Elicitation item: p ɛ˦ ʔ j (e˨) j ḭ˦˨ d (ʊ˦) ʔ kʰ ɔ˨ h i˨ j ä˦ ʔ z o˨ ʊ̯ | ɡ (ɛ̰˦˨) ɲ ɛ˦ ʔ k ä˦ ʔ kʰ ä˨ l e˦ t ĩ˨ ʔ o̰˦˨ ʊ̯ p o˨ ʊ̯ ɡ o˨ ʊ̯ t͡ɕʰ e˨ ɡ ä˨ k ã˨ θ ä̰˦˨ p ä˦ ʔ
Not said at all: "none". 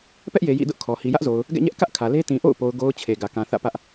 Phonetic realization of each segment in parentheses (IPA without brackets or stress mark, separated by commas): e˨, ʊ˦, ɛ̰˦˨